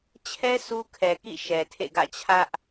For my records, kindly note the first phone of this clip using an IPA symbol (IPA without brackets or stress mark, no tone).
t͡ɕʰ